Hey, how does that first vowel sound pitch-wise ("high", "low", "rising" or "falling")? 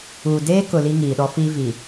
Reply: low